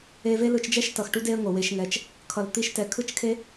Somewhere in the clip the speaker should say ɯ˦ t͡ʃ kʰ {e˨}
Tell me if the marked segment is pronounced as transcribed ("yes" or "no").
no